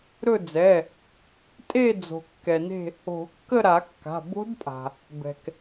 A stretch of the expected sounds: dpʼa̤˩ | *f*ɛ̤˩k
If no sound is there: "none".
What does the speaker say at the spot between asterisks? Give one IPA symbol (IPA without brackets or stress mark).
b